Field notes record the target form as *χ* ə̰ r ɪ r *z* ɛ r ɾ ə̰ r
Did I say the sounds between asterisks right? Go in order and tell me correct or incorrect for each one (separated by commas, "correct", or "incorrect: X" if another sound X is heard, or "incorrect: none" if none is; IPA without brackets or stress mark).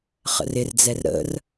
correct, incorrect: d͡z